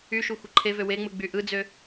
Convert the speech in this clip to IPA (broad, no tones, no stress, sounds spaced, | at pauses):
y ʃ u xʷ ɯ ǃʰ e v ø w e ŋ͡m ɯ ɡ͡b y ʔ ɯ d͡z ø